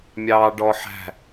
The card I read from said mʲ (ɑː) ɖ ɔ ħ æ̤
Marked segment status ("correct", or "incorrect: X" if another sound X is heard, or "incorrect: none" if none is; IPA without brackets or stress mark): correct